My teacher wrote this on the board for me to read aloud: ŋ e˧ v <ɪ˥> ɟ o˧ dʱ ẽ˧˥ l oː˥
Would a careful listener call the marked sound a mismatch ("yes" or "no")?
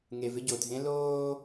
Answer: no